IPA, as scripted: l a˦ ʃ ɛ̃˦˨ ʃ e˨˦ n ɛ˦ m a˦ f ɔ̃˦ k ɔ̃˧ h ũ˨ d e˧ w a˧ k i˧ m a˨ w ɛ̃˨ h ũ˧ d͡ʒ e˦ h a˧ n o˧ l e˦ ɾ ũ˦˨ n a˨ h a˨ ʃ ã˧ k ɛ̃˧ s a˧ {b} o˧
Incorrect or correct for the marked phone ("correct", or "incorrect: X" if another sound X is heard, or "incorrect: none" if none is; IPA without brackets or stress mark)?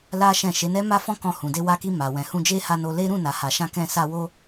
incorrect: w